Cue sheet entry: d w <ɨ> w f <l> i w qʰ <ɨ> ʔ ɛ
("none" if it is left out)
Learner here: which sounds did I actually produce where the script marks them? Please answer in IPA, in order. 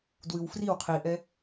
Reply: ɨ, r, i

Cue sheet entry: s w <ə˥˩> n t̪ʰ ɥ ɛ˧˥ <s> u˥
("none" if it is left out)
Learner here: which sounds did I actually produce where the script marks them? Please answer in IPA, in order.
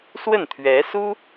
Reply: ə˥˩, s

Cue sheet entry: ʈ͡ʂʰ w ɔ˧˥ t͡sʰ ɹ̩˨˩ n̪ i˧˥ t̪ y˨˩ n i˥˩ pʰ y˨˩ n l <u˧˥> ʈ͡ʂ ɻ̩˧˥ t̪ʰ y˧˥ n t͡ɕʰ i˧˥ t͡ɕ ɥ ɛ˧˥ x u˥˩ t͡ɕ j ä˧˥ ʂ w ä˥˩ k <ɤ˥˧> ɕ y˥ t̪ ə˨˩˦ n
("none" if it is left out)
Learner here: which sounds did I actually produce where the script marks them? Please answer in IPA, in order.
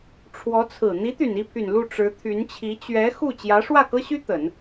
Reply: u˥˩, ɤ˥

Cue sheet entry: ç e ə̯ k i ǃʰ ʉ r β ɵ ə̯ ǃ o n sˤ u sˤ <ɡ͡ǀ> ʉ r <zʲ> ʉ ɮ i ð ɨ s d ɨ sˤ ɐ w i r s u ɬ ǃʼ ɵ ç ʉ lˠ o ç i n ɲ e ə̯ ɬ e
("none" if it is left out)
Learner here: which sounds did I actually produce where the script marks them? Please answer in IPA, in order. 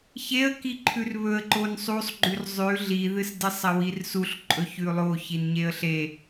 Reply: ɡ͡ǃ, zˤ

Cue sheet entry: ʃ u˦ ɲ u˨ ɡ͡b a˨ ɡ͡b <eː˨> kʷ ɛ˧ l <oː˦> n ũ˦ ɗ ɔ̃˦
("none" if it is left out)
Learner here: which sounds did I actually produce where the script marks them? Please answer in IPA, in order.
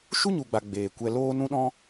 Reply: eː˨, oː˦

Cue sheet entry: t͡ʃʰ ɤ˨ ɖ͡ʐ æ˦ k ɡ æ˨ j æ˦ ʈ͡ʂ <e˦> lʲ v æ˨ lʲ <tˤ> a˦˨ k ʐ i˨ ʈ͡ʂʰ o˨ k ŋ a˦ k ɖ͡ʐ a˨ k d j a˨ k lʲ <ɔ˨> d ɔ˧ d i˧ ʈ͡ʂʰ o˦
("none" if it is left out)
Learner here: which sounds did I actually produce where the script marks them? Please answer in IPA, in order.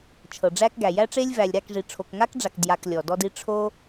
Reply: e˦, ɾ, ɔ˨

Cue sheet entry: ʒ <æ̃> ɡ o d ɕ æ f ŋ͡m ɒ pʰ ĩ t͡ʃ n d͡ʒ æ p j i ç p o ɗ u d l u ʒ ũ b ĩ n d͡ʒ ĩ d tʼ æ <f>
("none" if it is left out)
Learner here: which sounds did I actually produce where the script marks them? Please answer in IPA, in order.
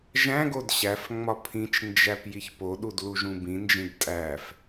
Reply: æ̃, f

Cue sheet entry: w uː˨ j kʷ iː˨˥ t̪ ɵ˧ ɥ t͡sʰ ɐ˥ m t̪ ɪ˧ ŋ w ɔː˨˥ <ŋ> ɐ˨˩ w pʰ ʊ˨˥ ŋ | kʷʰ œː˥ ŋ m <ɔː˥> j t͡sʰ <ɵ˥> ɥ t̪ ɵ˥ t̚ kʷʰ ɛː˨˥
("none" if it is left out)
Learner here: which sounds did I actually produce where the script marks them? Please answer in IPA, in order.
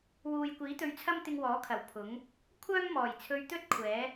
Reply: kʰ, ɔː˨˩, ɵ˧

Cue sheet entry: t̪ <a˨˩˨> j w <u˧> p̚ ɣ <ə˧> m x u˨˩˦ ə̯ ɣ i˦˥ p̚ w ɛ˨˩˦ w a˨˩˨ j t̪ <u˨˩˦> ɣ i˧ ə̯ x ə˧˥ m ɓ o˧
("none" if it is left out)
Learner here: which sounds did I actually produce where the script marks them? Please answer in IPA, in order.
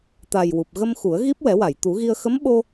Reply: a˨˩, u˨˩, ə˧, u˨˩˦

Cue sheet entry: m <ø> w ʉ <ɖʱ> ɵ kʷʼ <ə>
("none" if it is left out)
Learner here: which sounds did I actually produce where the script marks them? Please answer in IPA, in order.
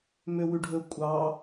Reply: ø, ɖʱ, ɑ

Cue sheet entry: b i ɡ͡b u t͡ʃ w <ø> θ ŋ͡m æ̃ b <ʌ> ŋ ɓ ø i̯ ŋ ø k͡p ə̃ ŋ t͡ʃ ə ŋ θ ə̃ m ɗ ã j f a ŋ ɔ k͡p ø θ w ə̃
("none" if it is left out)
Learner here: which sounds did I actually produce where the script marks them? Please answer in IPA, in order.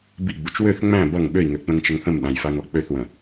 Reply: ø, ʌ

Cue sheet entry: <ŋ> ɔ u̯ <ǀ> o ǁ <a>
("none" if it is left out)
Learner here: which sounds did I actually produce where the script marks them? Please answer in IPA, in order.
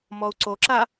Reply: m, ǀ, a

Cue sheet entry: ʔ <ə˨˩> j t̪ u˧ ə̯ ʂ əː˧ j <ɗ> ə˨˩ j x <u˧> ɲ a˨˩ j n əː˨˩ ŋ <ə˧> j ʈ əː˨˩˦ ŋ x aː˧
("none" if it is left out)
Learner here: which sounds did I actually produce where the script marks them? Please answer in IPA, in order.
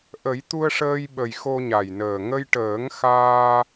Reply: ə˨˩˦, ɓ, o˧, ə˧

